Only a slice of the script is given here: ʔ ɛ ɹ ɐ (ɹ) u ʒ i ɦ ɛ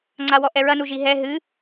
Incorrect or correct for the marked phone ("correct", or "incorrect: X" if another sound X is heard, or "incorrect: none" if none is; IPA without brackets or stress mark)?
incorrect: n